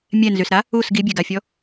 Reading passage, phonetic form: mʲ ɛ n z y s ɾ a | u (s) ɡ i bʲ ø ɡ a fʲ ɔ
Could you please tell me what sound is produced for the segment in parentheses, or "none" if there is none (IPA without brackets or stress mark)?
s